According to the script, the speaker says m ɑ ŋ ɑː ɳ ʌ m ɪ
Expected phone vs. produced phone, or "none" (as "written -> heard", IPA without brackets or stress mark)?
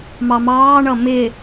ŋ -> m